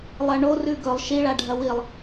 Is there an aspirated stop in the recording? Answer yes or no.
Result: no